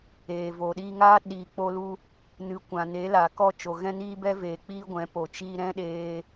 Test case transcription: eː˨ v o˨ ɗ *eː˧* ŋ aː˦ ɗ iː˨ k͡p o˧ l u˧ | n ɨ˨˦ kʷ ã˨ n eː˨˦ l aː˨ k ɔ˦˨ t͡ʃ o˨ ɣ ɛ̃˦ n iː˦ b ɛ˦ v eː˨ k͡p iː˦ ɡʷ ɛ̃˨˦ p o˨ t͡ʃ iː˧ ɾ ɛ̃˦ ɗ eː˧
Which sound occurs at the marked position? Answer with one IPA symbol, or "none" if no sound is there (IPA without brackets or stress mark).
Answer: iː˧